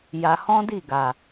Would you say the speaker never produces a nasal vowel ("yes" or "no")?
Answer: no